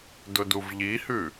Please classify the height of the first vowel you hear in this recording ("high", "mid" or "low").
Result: high